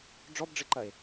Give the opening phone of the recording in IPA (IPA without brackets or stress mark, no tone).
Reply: ɖ͡ʐ